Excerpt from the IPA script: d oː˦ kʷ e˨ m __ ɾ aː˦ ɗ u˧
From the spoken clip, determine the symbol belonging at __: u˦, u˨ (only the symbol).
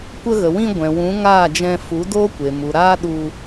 u˨